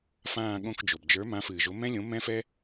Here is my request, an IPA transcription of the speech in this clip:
fãː˦˨ɠõ˦˨kd͡ʒo˩b d͡ʒə˞˨˦mã˨˦fɨː˩ʒo˨˦ mɛ̃˦lʲõ˨˦mɛ̃˦fɛ˦

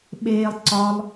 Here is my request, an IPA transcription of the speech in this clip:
ɓeːlˠ ǀɒlˠ

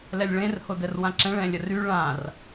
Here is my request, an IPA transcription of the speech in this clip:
lɛlʲɭẽr hodɛrwãǁɛ̃ɭ ɛ̃lʲəry ɭãr

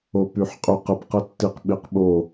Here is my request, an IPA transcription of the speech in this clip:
opyħqʼy qəp qətːiq ɓiqɓo

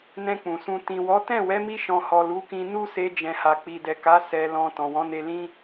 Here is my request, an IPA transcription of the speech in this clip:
nɛ̃˧ k͡pũ˨sũ˧ tĩ˨wɔ˨˦tɛ̃˦˨ wɛ˨˦mi˧ʃɔ̃˨hɔ˨ lu˨˦kĩ˧ nu˦se˧ d͡ʒɛ̃˨ha˨ k͡pi˨dɛ˨ka˨˦ sɛ˧ lɔ̃˧ tɔ̃˨wɔ̃˨˦ne˧lĩ˦

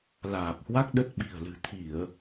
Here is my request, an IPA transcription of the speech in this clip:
laː˨˩p̚hwa˦˥k̚ ɗə˦˥t̚ ɓi̤˨˩ə̯lɨ̤˨˩ t̪ʰi˧˩˨ə̯

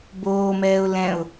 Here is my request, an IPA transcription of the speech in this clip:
boːmɛːʊ̯ lɛ̃ʊ̯

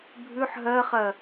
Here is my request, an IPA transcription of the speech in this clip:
bʱʉħ ɦɜχɜ

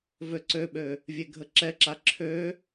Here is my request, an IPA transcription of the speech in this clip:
vøǀøɓø | vʲeɡʱəǁɛǁa ǁʰø

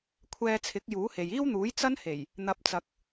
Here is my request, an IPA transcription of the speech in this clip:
kʷʰɛː˧t͡sʰɪ˨˥k̚ juː˨˥he˨j iː˥wn̪uː˨˥j t͡sɐ˥n he˨˩j | n̪ɐ˨˥p̚t͡sɐ˨k̚

